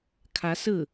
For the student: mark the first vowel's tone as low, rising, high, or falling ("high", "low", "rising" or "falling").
rising